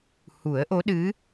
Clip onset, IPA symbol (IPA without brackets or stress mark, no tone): h